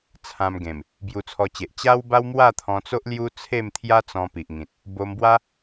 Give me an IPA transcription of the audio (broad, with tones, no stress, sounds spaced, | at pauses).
t͡sʰ ã˧ m ɡ ẽ˨˩ m | b j u˧ t͡sʰ ɔ˧ t͡ɕ e˨ ʔ t͡ɕ a˦ w b a˦ w m w a˥˧ t̪ʰ ɔ̃˧ t͡s o˦ ʔ l j u˦ t͡sʰ e˥˧ m t̪ʰ j a˦ t͡s ɔ̃˧ p i˨ ʔ ŋ ĩ˨ t̚ | b o˧ m b w a˦